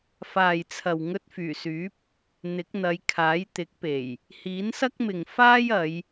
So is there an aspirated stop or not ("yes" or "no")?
yes